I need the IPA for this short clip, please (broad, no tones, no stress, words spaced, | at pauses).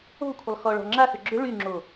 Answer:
o̤kʷʰəlˠ xɔɭɔ̤ŋ͡ǁaxʏ ɡ͡ǁʏ ɭyŋ͡ǁo